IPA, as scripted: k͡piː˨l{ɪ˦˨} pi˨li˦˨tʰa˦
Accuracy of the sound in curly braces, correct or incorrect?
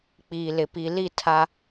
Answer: incorrect